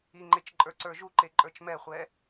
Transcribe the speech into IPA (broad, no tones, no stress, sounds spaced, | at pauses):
i ŋ͡ǃ e t͡ʃ ǃʼ ə˞ ǀ ə˞ ʒ u ǃ e ǃʼ ə˞ t͡ʃ m ɛ χʷ ɛ